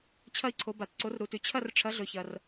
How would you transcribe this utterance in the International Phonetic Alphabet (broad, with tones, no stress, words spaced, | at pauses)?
t͡ɕʰɐ˥˧i̯ǀʰo˨˥ba˨t ǀo˨˥rɾu˨tʉ˨ t͡ɕʰɐ˥˧rʈ͡ʂʰɐ˨˥ ɮɵ˨çɐ˨r